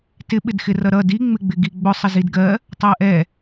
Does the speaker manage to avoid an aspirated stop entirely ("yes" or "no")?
yes